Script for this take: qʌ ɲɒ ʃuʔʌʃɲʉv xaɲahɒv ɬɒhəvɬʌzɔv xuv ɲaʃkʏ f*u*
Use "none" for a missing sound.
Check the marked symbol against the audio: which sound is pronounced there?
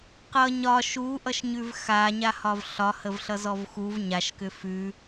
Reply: ʉ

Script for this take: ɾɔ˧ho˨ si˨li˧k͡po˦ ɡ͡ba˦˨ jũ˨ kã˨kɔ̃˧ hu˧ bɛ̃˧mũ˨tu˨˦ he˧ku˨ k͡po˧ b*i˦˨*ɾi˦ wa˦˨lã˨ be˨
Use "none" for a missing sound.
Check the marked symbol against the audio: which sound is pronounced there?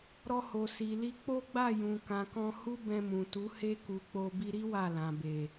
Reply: i˧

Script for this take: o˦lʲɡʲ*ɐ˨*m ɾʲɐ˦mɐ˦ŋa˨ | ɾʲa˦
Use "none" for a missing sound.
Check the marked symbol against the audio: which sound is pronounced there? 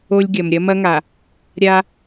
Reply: ɐ˨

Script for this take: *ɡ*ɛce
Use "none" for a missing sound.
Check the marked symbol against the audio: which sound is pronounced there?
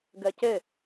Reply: ɡ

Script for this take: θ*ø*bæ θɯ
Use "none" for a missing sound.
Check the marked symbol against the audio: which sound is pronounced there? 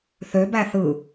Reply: ø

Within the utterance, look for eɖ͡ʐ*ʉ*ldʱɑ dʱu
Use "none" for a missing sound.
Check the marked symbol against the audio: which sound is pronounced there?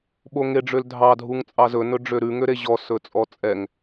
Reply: ø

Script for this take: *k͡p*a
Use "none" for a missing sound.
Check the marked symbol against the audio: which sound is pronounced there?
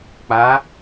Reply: k͡p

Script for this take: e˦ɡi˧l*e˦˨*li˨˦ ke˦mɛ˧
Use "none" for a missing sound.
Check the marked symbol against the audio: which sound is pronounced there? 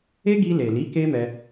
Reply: e˨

